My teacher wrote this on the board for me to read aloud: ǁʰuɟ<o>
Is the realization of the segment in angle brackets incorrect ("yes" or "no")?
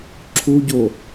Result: no